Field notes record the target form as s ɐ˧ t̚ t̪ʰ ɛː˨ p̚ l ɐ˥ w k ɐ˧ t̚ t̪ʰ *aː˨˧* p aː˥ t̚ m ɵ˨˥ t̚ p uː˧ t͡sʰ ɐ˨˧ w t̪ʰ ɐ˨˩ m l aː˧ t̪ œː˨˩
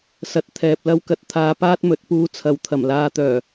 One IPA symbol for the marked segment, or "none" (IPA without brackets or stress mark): aː˧